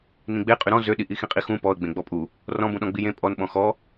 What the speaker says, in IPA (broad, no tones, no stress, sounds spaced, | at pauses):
n ĩ ɡ͡b e qʼ y ɾ ɔ̃ z ø ɗ i ʔ i x ĩ qʼ i x ũ p ɔ ə̯ ɡ͡b ẽ ɡ͡b ɔ pʼ u | r ɔ̃ b ũ ɗ ɔ̃ ɡ͡b i j ẽ pʼ ɔ n ɓ ɔ̃ x ɔ